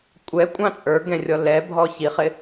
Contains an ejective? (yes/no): yes